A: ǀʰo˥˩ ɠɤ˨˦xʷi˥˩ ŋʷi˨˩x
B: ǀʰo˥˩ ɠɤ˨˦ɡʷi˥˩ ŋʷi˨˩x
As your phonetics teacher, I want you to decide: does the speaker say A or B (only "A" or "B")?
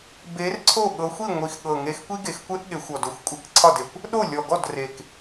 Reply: A